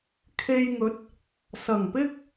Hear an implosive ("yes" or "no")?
no